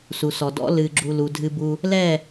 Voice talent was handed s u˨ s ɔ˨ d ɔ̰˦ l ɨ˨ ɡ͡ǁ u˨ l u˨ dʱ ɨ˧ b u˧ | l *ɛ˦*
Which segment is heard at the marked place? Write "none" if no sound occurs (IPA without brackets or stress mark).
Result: ɛ˦˨